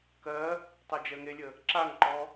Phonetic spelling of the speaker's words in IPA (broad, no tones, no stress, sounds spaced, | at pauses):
k ɜ | tˤ ɜ d͡ʒ ɜ ŋ e lʲ ə | ǁ a ŋ ǃ ɔ